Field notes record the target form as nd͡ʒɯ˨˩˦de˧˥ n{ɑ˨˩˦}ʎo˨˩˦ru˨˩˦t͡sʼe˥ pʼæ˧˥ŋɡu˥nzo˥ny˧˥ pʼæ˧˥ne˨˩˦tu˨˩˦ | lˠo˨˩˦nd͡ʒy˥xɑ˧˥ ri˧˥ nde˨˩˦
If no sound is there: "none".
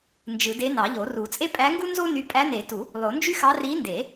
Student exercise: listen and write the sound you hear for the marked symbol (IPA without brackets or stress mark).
ɑ˨˩˦